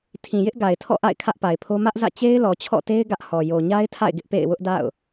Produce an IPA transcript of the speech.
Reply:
tʰĩ˨jɪ˦ʔ ɡa˨ɪ̯tʰɔ̰˦˨ʔa̰˦˨ɪ̯ kʰä˦ʔpa˨ɪ̯pʰo˦ mä˦ʔzä̰˦˨ t͡ɕe˦ɪ̯lɔ˨t͡ɕʰɔ̰˦˨te˦ɪ̯ ɡä˦ʔhɔ˨ jo˨ɲa˦ɪ̯tʰa̰˦˨ɪ̯ ɡɪ˦ʔpḛ˦˨ɪ̯wʊ˦ʔ da̰˦˨ʊ̯

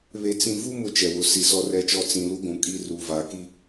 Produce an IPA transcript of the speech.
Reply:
βe˨ t͡sĩ˨vu˦ mʊ˦t͡ʃɛ˨wʊ˨ si˨sɔ˦rɛ˦˨t͡ʃɔ˦ t͡sĩ˨ lu˦ɡʷũ˨kʼi˦ ruː˨vaː˨ki˦

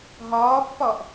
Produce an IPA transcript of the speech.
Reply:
ɦɒːpːɒʔ

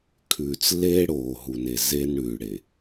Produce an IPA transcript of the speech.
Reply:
kʰʉː˨t͡slːeː˦ɽoː˨ ɦu˨ne˨ zeː˦nɽʉː˨ ɽe˨

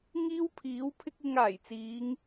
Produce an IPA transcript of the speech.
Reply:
ŋiː˥wpʰiː˨˥w pʰɪ˥k̚ ɪ˧ŋ aː˨˩jt͡siː˨˧ŋ

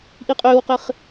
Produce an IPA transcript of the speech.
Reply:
ʔiqʼʏːwqɪχ

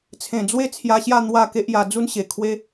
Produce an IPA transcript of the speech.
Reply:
t͡sʰẽ˨˩d͡zwe˦ t͡sʰja˧ɕja˥˧ n̪wa˥˧ke˦ʔja˧ d͡zu˦nɕe˨˩kʰwe˦

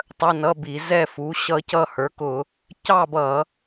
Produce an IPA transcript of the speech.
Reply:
tˤə˧˥˧nʌ˧˥˧bi˧˩˧ zɛ˥˧fu˩˥ ɕʌ˦˥cʌ˥˧hə˞˩˥kʊ˧˩˧ | cɑ˥˧bʌ˧˩˧

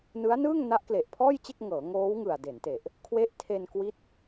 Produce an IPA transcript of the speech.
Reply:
nɯ˦˥a̯nɯː˥˩ŋ na˦˥ʔkle˨˩ʔpʰɔː˥˩jt͡ɕe˥˩k̚ ŋɤː˩˦ŋoː˦˥wŋɯ˨˩a̯ de˩˦nte˨˩ʔ | kʰwe˦˥ʔtʰe˧n kwi˦˥t̚

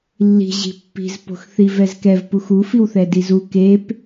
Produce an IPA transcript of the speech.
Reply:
lːi̤ ʑi̤pːi̤z po̤xθivɛzkɛv puxu fiwθɛdizu kep

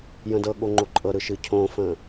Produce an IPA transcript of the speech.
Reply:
jə̃dɤɠo ŋ͡ǃoǃʼɤɾɯ ʃɨcʰõfə̃

